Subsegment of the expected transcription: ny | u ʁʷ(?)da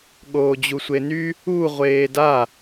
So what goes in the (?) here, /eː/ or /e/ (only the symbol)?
eː